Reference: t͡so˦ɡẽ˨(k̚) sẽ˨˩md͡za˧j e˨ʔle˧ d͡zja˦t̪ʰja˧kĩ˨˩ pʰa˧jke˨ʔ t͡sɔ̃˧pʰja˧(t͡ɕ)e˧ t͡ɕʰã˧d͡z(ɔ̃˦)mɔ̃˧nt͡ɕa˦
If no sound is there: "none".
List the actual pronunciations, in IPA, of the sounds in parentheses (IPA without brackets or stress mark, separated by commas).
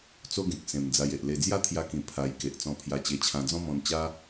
k̚, t͡ɕ, ɔ̃˦